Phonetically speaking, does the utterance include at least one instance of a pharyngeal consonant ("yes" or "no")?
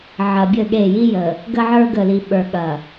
yes